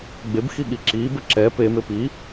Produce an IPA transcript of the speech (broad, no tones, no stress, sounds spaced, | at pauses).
ɡ͡b e b x i ɠ i ǁ i b ə ǁ ɛ p e m e p i